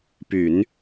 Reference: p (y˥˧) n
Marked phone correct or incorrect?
incorrect